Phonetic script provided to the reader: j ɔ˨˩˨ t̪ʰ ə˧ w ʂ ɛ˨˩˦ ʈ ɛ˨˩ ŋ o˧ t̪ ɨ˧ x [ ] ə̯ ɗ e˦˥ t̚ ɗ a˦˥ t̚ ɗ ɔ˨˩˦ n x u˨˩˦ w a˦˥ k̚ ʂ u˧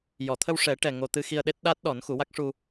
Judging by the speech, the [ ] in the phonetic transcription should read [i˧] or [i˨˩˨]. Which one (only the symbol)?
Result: i˧